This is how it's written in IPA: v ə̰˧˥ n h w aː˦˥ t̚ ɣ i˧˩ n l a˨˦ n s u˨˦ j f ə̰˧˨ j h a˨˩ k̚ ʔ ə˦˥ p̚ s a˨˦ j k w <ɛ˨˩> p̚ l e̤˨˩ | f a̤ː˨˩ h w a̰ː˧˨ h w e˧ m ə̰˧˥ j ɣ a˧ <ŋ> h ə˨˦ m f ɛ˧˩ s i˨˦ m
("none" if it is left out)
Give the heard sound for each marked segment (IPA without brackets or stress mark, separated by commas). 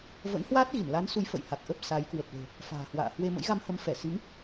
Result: ə˨˩, m